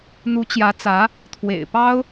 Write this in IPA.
n̪u˧˥t͡ɕjä˧˥ t͡sä˧˥ | t̪ʰwḛ˨˩ɪ̯pɑ˥ʊ̯

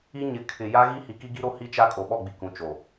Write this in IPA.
i˦ ɲɪ˨ kʰɪ˨ ja˦ɣi˦ hi˨ki˦ɡi˦ɾo˦ hi˦t͡ʃa˦ kʼo˨ɓɔ˦˨ɡ͡bi˨ kũ˨t͡ʃo˨

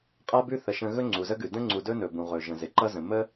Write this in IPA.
qʼa˦bʉ˦ θə˩ʃə̃˨ ɣɵ˥ŋ͡ǀu˩zə˥ɡʉ˩ də̃˥ŋ͡ǀu˨dɵ˥nɵ˩ bũ˩ʁɵ˩ʒə̃˩ zɪ˩ǃʌ˦ zə̃˩ mə˥

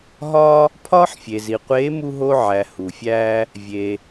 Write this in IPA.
ɦɒː˥ | pʰɒː˥ħfʲe˩zi˩qʷeː˧˥ mu˥ɦo˥ ʕæ˩ hu˩fʲæː˧ | vʲe˩

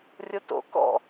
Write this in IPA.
rʲoto̰ kɔ̰

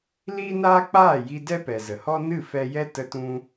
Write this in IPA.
liː˦naː˦k͡paː˦˨ji˧ dɛ˦pɛ˨zə˨hɔ˦ nɨ˦˨fɛ˧jɛ˦ tə˧tũ˧

